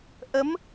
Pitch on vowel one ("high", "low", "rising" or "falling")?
rising